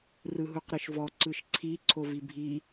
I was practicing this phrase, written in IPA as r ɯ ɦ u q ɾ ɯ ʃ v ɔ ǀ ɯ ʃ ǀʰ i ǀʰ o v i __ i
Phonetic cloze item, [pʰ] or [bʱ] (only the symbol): bʱ